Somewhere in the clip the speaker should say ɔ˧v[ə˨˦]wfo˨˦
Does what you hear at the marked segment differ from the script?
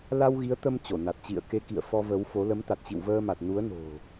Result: no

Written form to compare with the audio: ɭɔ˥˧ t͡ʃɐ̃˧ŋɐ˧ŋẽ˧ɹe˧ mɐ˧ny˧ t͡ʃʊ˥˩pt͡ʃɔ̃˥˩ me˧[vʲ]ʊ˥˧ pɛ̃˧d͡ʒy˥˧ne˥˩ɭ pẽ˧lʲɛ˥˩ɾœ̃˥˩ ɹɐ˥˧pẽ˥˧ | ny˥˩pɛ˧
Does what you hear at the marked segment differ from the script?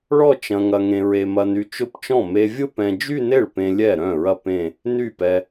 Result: no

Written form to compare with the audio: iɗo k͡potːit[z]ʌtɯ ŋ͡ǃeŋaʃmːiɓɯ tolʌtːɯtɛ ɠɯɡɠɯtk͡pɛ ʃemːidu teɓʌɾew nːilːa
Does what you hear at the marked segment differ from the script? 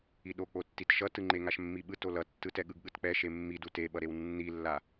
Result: yes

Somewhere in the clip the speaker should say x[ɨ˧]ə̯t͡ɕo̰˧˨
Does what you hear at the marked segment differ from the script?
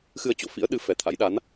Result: no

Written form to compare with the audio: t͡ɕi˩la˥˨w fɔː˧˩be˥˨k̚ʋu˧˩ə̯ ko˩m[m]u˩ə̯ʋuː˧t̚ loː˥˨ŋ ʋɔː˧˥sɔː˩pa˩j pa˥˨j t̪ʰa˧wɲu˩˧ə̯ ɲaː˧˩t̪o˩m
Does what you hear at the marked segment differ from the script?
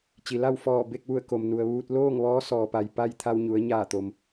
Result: yes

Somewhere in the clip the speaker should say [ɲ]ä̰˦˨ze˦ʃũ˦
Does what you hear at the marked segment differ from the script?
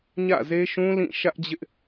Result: no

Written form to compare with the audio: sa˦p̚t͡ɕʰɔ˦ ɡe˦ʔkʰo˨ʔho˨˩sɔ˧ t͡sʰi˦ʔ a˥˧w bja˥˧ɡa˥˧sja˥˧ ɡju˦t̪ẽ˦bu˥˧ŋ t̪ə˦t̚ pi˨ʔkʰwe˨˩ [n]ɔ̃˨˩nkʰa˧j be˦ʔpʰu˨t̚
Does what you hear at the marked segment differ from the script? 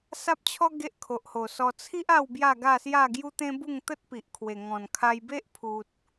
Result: yes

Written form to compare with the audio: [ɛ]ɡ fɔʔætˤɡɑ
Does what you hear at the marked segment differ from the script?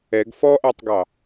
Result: no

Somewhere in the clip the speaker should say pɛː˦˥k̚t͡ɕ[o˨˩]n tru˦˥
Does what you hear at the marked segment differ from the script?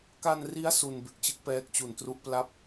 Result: yes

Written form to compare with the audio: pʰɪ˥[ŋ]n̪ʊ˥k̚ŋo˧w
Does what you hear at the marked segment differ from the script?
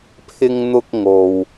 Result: no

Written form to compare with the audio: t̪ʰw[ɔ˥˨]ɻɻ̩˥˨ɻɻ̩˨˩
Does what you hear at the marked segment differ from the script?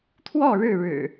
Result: no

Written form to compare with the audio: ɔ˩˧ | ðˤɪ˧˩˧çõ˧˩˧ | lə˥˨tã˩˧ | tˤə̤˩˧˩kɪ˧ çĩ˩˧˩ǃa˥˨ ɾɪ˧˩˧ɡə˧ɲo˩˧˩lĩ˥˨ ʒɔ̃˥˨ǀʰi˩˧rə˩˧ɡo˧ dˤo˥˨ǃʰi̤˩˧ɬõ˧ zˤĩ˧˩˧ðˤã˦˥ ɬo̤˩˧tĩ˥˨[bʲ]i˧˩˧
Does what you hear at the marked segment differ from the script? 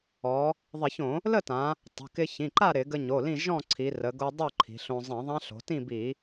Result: yes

